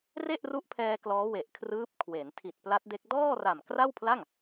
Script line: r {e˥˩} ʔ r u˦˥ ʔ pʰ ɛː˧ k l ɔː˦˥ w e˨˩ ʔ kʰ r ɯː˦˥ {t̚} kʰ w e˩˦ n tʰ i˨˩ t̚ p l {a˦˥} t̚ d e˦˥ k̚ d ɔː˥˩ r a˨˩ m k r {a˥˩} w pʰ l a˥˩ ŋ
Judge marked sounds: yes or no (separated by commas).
yes, no, yes, yes